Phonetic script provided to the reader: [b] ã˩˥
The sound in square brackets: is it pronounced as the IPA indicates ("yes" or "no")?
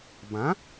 yes